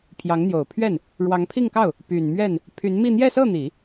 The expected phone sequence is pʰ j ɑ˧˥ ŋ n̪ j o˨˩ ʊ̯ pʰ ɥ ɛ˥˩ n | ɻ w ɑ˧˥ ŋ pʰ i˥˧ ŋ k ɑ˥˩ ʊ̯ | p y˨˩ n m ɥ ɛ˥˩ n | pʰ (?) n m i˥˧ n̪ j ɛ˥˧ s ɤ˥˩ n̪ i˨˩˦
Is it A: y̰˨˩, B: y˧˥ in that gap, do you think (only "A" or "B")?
B